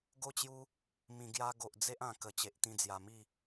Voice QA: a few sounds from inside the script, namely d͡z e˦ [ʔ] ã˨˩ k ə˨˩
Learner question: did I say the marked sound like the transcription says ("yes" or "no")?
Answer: yes